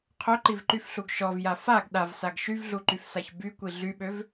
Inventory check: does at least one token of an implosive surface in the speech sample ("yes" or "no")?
yes